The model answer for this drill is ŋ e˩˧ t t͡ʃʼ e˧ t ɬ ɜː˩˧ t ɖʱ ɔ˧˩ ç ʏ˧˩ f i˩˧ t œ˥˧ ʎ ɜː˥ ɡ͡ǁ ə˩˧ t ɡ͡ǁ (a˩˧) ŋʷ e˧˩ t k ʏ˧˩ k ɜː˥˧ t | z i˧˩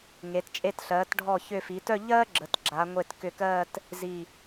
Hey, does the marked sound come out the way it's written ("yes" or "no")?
yes